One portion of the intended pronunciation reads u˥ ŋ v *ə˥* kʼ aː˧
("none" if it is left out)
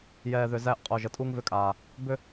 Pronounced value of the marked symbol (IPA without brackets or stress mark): ʏ˥